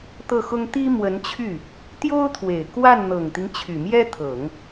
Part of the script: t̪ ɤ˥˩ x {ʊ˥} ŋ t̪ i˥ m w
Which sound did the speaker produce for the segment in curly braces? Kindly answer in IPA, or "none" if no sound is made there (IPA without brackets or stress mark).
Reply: ʊ˥